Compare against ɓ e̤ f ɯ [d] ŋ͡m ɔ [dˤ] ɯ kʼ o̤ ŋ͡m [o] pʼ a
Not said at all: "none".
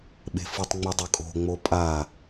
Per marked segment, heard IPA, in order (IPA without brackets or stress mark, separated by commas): tˤ, dˤ, o